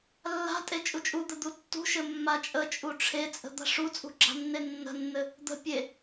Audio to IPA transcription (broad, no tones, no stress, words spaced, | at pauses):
lːa̤ tʼet͡ʃʼut͡ʃʼud̪ə d̪utːṳʃɘ mːat͡ʃʼət͡ʃʼu ʈ͡ʂʰet͡sʼə̤ d̪a̤ʂut͡sʼṳ ɡ͡ǁa̤nːenːə̤nːɘ | d̪ə̤ pʲe